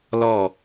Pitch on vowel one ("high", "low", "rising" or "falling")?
falling